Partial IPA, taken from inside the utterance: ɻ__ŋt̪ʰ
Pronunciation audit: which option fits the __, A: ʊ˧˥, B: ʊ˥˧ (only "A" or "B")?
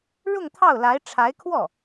B